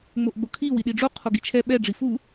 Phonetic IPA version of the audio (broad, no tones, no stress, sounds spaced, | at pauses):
ŋ͡m o ʔ ɡ͡b o kʰ i w i ɗ i ɖ͡ʐ o qʰ o ɡ i t͡ʃʰ ɛ ɓ ɛ ɖ͡ʐ i f u